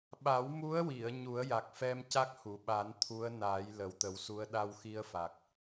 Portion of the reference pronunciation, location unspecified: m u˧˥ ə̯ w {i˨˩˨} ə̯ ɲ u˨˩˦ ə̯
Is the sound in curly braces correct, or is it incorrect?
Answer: correct